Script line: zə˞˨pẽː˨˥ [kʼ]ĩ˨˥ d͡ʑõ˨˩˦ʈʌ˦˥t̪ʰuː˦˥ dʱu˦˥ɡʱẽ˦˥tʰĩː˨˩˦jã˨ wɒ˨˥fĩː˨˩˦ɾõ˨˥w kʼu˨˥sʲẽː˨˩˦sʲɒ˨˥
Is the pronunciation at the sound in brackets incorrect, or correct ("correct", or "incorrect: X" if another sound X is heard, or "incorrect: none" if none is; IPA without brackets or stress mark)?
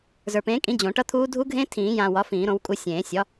correct